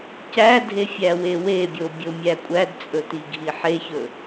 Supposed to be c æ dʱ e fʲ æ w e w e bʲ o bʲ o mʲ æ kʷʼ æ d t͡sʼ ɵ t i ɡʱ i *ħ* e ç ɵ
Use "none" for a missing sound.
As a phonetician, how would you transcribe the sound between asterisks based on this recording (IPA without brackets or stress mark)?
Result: ħ